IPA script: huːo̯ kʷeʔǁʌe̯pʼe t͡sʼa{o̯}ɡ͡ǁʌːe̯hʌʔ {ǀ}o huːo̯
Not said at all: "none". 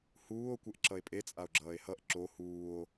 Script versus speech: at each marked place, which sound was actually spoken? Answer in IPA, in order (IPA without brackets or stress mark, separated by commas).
o̯, ǁ